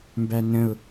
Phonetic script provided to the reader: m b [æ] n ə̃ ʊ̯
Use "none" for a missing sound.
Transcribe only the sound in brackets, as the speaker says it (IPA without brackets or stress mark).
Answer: æ